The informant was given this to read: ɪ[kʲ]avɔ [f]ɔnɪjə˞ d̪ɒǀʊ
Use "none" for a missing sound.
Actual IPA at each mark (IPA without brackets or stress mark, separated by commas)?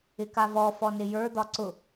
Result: k, f